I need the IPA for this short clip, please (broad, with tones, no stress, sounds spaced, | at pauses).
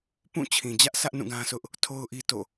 p ũ˦˨ t͡ɕʰ ĩ˨ d͡ʑ ä˦ ʔ sʰ ä˦ ʔ n ũ˦˨ ɡ ã˦ sʰ ʊ˦ ʔ | tʰ o˦ ʊ̯ ʔ i˦ t o̰˦˨